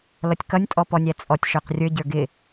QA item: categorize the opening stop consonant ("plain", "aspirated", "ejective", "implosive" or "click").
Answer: plain